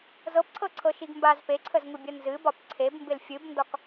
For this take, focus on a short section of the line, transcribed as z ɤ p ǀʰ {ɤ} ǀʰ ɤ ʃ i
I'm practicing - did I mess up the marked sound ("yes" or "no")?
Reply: no